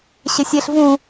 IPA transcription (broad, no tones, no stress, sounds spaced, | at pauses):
ɕ ɪ sʲ e ɬ v ũ